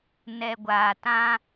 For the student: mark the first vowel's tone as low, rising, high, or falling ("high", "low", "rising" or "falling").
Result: low